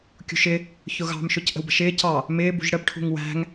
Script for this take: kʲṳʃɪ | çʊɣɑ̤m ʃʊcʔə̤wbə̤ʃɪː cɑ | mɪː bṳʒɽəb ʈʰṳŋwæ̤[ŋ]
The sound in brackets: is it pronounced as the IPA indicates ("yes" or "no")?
yes